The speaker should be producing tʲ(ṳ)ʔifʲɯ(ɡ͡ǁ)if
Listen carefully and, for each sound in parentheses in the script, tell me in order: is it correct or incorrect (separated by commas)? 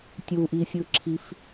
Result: incorrect, incorrect